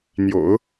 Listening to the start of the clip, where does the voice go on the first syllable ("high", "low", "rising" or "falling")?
low